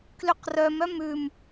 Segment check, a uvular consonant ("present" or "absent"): present